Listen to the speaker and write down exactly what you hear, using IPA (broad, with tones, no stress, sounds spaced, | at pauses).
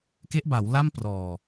k e˦˥ ʔ b a˩˦ w l a˥˩ m p r ɔː˨˩